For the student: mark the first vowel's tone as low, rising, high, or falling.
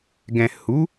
low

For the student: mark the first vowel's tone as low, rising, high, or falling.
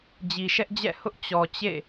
low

